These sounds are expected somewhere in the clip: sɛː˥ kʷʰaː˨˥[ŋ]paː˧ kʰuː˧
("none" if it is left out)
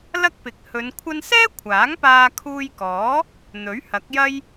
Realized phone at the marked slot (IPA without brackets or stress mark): ŋ